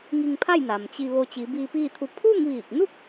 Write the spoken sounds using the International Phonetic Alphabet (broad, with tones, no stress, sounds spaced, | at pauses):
ŋ i˧ ŋ pʰ a˥˨ j n a˩ m t͡ɕ i˧ ʋ o˧ t͡ɕ i˩˧ b iː˧ p iː˥˨ t̪ʰ u˧ pʰ uː˥˨ ŋ ʋ iː˧˩ k̚ n u˥˨ k̚